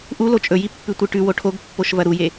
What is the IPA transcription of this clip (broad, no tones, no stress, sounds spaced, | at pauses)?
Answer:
ʔ u l o t͡ʃʼ ɵ j i pː ʉ tʷ ɨ ʈ ʉ w o ʈʰ o ɡ pː o ʃ v ɐ ɾ u j e